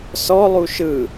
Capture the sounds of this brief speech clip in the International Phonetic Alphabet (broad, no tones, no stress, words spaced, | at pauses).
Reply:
sɔlˠu ʃɯ